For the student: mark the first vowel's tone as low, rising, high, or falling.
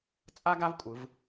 high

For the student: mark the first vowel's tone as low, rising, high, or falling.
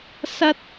high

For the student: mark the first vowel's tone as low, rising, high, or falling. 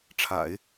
low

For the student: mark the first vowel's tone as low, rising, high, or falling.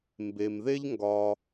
low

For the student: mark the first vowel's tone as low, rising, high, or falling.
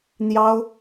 high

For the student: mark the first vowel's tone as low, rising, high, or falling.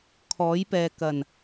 rising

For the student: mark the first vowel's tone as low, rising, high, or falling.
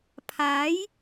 rising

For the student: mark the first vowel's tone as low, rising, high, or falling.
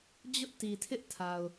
high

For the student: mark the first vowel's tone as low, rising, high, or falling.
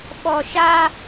low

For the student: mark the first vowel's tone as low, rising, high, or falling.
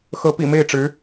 rising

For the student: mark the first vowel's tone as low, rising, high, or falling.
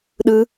high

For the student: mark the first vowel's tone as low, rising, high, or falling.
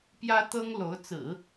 high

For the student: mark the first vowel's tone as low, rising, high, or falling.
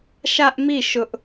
high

